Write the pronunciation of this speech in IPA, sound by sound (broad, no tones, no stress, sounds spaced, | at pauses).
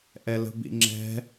ʔ ɛ l ə̤ b ḭ ŋ͡ǁ ɛ̤